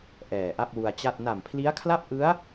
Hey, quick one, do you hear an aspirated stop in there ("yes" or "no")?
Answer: yes